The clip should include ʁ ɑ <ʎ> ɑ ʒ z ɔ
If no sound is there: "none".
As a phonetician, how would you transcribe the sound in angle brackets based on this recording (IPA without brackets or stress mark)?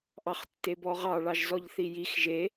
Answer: ɭ